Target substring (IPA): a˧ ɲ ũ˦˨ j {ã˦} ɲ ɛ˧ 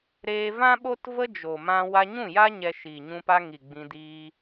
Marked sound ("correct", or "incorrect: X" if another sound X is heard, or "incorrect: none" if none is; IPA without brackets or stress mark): incorrect: a˦